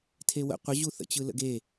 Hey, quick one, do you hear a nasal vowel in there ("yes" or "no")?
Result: no